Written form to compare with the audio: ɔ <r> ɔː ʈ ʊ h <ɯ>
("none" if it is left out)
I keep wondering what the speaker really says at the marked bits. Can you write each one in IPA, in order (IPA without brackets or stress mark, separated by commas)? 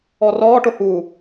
r, u